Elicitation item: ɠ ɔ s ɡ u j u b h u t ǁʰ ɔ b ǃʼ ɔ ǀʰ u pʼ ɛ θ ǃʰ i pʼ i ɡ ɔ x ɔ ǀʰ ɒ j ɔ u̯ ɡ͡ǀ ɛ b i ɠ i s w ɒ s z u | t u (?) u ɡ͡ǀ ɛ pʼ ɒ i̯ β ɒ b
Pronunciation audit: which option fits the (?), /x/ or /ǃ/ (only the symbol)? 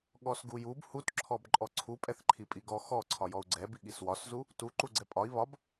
ǃ